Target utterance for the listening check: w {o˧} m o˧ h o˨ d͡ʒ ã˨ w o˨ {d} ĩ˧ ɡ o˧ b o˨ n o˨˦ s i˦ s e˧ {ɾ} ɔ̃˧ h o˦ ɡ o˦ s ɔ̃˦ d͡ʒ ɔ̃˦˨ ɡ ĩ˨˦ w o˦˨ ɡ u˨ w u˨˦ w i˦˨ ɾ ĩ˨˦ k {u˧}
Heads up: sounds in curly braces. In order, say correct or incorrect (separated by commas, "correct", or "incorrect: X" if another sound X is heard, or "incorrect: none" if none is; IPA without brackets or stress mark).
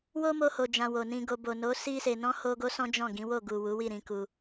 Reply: incorrect: o˦, incorrect: n, incorrect: n, correct